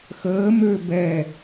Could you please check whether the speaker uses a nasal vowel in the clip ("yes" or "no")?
no